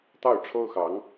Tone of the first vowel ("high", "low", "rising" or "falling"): falling